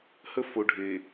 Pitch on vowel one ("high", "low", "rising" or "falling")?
high